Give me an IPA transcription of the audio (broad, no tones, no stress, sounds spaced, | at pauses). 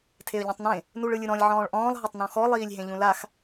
tʰ e ə̯ ʎ ɔ̃ tˤ n ẽ | n u ɭ ɯ lʲ ɯ ɾ ɔ̃ lʲ ʕ ɔ̃ː ɭ ʔ ɔ̃ː lˠ ɦ ɤ tˤ n ɔ̃ x ɔ lˠ iː lʲ ɦ ẽ ʎ ũ l a x